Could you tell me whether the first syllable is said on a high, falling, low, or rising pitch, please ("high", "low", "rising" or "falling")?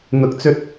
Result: rising